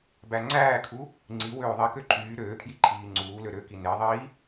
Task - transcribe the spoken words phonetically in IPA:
b æ ŋ͡ǀ æː kʰ u | ŋ͡ǀ i w øː ðˤ i k ø ǃʰ yː ɾ øː kʰ j i ǃʰ iː ŋ͡ǀ uː l ø ɾ ø k i n e ðˤ iː

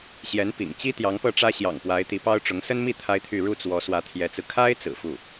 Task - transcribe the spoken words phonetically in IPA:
ɕ j ɛ˧˥ n p ḭ˨˩ ŋ t͡ɕ i˥ t̪ j ɑ˧˥ ŋ p ɤ˥˩ ʈ͡ʂ ä˥ ɕ j ɑ̰˨˩ ŋ p w a˧˥ ɪ̯ t̪ i˧˥ p ɑ˥ ʊ̯ ʈ͡ʂ ʊ˧˥ ŋ s ə˥ n m i˥˩ t̪ʰ a˥ ɪ̯ t̪ʰ y˥˧ ɻ u˥˩ t͡s w ɔ˧˥ s w ä˧˥ t̪ʰ j ɛ˧˥ t͡s ɹ̩˧ kʰ a˥ ɪ̯ t͡s ɹ̩˨˩ f u˥˩

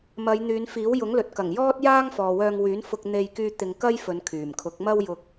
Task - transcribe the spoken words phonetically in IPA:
m ɐ˨˧ j n̪ yː˨˧ n f iː˨˥ w j ʊ˨˥ ŋ l ɵ˨ t̚ k ɐ˨˩ ŋ j ɔː˥ t̚ j aː˥ ŋ f ɔː˨ w œː˧ ŋ w yː˨˥ n f ʊ˧ k̚ n̪ e˧ j k yː˧ t̪ ɪ˧ ŋ k ɐ˥ j f ɵ˨˧ n kʰ yː˨˩ m kʰ ʊ˨˥ k̚ m ɐ˥ w j ʊ˧ k̚

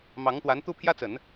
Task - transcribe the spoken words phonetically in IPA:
m ɑ˧˥ ŋ t̪ w a˧˥ n t̪ u˥˩ pʰ j ä˥ t͡s ə˨˩˦ n

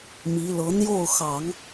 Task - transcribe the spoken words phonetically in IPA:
m i˧˥ l ɤ˧˥ n̪ j o˥˩ ʊ̯ x ɑ˨˩˦ ŋ

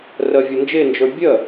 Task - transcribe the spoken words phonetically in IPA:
r ɜ vʲ ɔ n d͡ʒ e n d͡ʒ ə˞ bʲ ɜ

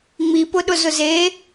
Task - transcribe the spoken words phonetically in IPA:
ŋ͡m i p ʊ ɗ ʊ z ʊ z e

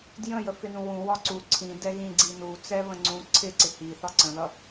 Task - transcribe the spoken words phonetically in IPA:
d j ə̃ j ə f ɪ n ũ w ũ w ɒ ǀ u ǀʰ ĩ d ɛ ɣ ĩ ɡ͡ǀ i n u t͡s ɛ β ə̃ ŋ͡ǀ ũ ǀʰ ɪ ǀ ɪ h i θ ɒ ǀ ə̃ ð ʌ

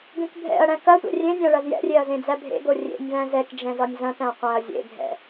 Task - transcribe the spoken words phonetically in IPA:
ɡ ẽ k bʱ ɛ̰ ɐ̯ ɽ æ̃ k ɐ tʷ ɛ̰ rʲ ẽ nʲ æ̃ ɭ ɐ z j ɛ̰ rʲ e ɐ̯ z ẽ d͡z æ bʱ ḛ ɡ o rʲ ḛ nʲ v æ̃ z ɛ k d͡ʒ ɛ̃ z ɒ nʲ z ɐ̃ t æ̃ qʷ æ̃ ɐ̯ zʲ ḛ ɡʱ ɛ̰

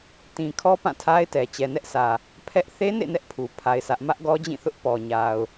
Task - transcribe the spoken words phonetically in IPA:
t ĩ˨ kʰ ɔ˦ p ã˦˨ tʰ a˦ ɪ̯ t ɛ˨ t͡ɕ ɛ˨ n ɛ˦ ʔ sʰ ä˨ | pʰ ɛ˦ ʔ θ e˦ n ḛ˦˨ n ɛ˦ ʔ pʰ u˨ pʰ a˦ ɪ̯ s ä˦ ʔ m ä˦ ʔ ɡ ɔ˦ d͡ʑ ĩ˦˨ θ ʊ˦ ʔ p ɔ˨ ɲ a˨ ʊ̯

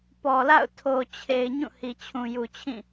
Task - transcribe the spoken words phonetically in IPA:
p ɔ˨ l a̰˦˨ ʊ̯ tʰ o˨ t͡ɕʰ e˨ ɪ̯ ɲ ũ˦˨ h i˨ t͡ɕʰ ũ˨ j u˨ t͡ɕʰ ĩ˦˨

